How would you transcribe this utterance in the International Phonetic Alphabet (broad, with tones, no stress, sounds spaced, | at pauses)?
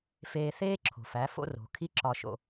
f eː˧ θ eː˦ ǁʰ o̤˨ f æ˨˦ f o̰˦ r o̤˨ kʰ i˦ ǁ ɒ˧ ʃ o̰˧